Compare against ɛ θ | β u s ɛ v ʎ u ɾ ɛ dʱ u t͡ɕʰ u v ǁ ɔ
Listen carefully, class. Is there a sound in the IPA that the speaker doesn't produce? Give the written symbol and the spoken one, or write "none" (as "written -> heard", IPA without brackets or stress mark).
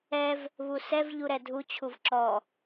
θ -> v